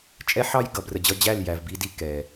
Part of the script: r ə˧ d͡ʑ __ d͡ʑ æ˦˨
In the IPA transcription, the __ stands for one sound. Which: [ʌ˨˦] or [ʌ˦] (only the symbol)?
ʌ˦